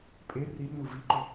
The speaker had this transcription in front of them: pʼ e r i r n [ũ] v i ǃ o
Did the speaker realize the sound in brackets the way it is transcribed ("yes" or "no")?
no